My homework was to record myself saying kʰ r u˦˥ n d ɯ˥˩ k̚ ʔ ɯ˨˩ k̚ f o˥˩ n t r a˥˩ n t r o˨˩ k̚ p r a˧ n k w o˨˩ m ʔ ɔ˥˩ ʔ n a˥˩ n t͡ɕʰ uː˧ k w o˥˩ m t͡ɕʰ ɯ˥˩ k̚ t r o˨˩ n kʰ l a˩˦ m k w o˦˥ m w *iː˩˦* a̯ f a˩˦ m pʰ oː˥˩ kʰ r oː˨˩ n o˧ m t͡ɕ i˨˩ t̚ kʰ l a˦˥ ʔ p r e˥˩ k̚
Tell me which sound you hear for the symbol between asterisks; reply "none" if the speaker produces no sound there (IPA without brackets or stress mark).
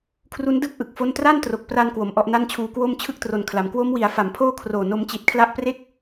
i˩˦